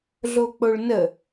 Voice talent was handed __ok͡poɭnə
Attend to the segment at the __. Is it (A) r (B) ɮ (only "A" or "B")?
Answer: B